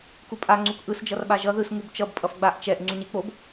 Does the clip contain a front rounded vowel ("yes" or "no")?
no